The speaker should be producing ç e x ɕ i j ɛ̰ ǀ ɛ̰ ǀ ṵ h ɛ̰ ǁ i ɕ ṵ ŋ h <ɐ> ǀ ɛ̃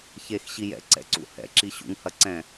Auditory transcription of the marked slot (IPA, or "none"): ɐ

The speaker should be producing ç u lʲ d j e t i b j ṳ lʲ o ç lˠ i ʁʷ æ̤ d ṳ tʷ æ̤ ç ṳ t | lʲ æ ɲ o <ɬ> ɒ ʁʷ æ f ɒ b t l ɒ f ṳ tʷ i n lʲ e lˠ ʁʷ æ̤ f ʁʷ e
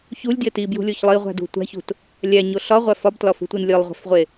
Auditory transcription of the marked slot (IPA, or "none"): ɬ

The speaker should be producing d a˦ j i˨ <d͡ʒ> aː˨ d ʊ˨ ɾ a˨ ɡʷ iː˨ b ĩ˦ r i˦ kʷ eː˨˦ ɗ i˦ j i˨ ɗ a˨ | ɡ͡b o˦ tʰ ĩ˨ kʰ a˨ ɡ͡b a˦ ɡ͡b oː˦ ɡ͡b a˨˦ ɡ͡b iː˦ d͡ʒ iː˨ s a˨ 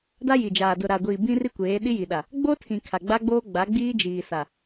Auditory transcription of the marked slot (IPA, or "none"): d͡ʒ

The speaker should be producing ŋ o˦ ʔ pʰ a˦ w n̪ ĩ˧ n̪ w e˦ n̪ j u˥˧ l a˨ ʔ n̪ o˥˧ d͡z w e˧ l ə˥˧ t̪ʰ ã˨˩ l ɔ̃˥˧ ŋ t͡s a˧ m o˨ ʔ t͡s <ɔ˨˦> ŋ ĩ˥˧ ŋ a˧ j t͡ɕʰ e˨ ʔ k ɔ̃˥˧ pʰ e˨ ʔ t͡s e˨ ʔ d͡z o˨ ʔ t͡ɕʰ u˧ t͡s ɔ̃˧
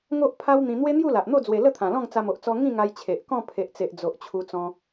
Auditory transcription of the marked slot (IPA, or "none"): ɔ˧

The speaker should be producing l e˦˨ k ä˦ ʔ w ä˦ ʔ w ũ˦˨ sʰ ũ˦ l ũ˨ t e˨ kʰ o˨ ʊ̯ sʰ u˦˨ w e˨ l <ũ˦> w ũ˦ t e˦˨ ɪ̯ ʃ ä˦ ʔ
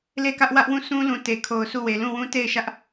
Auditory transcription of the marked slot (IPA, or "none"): ũ˦˨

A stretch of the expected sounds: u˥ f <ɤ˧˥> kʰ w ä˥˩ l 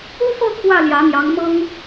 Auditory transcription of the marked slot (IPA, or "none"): ɤ˥˧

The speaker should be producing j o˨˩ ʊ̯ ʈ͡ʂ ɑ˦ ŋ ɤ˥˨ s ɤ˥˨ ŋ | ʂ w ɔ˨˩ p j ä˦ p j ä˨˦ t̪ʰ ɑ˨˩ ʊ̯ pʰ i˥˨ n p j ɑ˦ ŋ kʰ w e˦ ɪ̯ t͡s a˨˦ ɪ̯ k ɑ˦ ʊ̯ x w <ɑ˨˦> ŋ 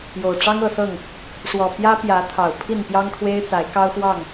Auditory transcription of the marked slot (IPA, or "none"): ɑ˥˨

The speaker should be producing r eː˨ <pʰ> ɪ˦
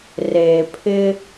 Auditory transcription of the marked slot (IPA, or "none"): pʰ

